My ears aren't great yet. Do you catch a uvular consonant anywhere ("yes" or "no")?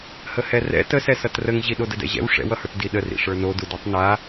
no